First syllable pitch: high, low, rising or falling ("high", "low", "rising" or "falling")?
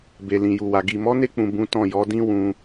low